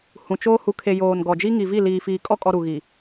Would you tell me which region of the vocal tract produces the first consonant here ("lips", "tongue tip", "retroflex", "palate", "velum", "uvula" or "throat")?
throat